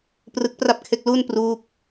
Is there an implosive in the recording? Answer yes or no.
no